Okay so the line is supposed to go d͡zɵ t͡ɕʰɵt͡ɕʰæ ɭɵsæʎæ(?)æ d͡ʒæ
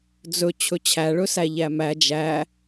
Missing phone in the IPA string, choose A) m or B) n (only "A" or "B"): A